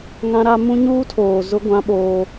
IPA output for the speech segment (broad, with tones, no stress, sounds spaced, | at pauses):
ŋ ã˦ ɾ a˦ m ũ˦ ɲ uː˦ tʰ oː˨ z ʊ˦ ɡʷ ã˦ ɓ oː˦